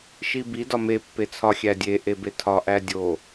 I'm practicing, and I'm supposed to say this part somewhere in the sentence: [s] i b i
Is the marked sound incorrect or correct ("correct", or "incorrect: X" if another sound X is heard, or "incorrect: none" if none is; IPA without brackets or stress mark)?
incorrect: ʃ